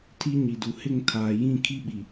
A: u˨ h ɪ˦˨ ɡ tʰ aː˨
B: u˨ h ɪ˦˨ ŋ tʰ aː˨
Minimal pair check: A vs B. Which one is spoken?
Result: B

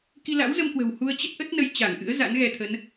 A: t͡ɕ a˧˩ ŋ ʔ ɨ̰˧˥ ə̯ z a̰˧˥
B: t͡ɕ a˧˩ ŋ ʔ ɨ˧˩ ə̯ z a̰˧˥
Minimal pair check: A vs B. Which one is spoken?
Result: A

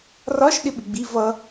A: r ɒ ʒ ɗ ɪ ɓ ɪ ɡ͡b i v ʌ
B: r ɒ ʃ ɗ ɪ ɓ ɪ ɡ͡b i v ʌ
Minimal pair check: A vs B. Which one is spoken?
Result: B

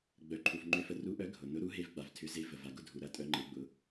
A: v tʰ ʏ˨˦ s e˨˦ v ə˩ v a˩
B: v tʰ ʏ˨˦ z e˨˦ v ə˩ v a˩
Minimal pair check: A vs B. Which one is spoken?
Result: B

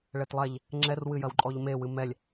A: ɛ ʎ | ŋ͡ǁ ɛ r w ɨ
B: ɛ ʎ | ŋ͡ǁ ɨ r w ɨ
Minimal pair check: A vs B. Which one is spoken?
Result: A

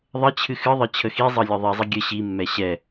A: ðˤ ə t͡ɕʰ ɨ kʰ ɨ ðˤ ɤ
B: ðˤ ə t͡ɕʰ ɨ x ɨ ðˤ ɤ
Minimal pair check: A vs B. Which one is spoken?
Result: B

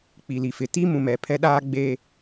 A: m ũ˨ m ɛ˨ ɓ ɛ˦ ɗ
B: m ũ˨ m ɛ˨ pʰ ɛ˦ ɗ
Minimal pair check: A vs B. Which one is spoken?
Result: B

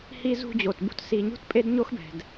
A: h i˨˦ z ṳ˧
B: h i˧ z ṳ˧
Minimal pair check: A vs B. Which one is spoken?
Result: B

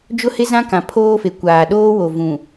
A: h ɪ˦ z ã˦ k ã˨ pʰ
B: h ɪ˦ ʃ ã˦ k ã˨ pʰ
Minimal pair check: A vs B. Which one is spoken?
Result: A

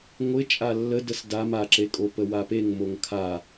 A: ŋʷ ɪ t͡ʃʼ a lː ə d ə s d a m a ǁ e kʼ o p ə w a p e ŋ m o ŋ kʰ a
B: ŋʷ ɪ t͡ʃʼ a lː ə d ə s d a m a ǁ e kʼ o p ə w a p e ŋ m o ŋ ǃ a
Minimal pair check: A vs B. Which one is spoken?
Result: A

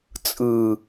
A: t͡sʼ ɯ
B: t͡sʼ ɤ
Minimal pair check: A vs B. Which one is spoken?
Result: A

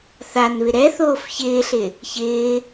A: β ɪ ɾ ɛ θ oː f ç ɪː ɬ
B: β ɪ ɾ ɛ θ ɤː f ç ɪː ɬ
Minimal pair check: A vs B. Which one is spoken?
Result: A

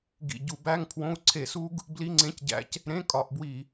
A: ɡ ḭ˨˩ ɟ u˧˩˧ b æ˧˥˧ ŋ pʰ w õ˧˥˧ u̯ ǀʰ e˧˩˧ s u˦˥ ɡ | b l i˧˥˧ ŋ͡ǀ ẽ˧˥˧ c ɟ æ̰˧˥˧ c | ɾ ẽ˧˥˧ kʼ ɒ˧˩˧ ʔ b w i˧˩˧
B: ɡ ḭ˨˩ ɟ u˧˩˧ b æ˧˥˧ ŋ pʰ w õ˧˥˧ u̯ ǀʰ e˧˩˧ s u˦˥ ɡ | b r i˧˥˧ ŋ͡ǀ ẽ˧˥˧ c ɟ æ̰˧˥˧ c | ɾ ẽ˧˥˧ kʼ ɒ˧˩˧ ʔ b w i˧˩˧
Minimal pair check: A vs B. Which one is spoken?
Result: A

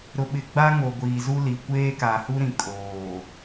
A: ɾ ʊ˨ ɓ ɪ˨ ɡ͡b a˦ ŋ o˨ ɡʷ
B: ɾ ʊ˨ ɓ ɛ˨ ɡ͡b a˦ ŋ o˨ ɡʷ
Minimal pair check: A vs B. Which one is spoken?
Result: A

